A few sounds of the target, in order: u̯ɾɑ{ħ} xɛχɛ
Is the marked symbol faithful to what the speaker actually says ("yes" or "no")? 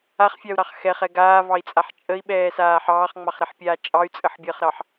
no